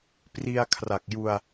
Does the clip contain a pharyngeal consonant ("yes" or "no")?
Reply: no